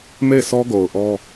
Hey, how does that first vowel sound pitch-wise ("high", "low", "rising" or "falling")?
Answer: falling